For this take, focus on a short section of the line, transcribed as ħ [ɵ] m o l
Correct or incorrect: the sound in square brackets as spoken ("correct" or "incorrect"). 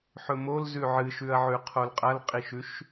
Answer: correct